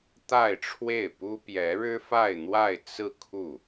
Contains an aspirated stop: yes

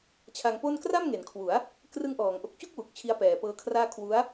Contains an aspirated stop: yes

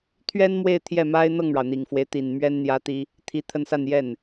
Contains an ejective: no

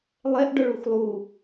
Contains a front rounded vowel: yes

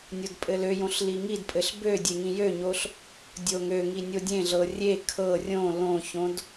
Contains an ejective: yes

